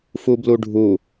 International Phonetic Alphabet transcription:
f u b l u ɖʱ u

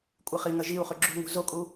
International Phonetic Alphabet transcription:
kʷʼ ɨ χ i ŋ ɐ ʒ i u̯ χ ʉ ɡ͡ǁ ṳ ŋ ṳ z o kʼ u

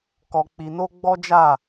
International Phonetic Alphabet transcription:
k ɔ˧ k͡p i˧ n o˦ ɡ͡b ɔ˦ d͡ʒ a˦˨

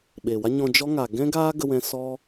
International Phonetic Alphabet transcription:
ɓ eː˨ w a˦ ɲ ɔ̃˧ d͡ʒ ɔ˦ ŋ a˨ ɡ ɛ̃˦ ɡ aː˦ ɡ ə˧ w ɛ̃˧ s ɔ˦

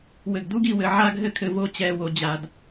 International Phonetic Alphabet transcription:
w ɘ˨ ɡ d u˦ ɡ i˨ w ɘ˨ ʕ a˦ ɡ ɦ ɘ˦ kʰ ɘ˨ v o˦˨ t͡ɕ ɛ˦˨ w o˨ d͡ʑ a˨ d

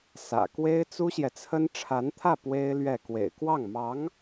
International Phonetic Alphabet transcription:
s ä̰˨˩ k w e˥ ɪ̯ t͡s u˥ ɕ j ɛ˨ t͡sʰ ə˥ n ʈ͡ʂʰ a˧˥ n t̪ʰ ä˥˩ p w e˥ ɪ̯ l ɥ ɛ˥˩ k w ḛ˨˩ ɪ̯ k w ɑ˥˩ ŋ m ɑ˧˥ ŋ

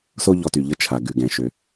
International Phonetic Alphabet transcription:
s o˥ ʎ ɔ˧ t y˩ ʎ ə˧ t͡ʃʰ a˩ ɡ ʉ˩ ɡ ɛ̃˩ ʃ ø˩

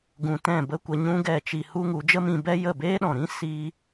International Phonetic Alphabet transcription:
ɡ ũ˧ t ɛ̃˦˨ b ə˦ kʷ ə˧ ɲ ũ˦ ɡ ɛ˦˨ t͡ʃ i˧ h u˦ ŋ u˨˦ d͡ʒ ə˦ m ĩ˧ b ɛ˦ j ə˦˨ b eː˦ ɗ ɔ̃˨ ɾ ĩ˦ s i˦

